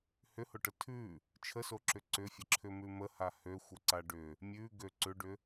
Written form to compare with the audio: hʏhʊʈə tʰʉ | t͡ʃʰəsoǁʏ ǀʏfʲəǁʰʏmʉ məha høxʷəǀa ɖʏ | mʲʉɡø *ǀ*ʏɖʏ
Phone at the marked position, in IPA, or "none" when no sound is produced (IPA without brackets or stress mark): ǀ